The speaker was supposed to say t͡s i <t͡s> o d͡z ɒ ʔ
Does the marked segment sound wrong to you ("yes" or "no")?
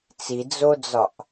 yes